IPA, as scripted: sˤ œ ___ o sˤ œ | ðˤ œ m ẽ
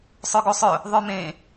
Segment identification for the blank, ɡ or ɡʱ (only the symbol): ɡ